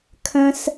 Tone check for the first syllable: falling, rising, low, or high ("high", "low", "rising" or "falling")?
high